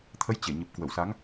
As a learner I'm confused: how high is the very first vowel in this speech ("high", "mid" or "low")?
mid